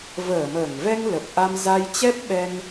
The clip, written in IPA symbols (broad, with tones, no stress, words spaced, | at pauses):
vəː˧˩məː˧˩ŋvɛ˧ŋ lə˨˩p̚ʔa˧m za˧jt͡ɕɛ˦˥p̚ɓɛ˧ŋ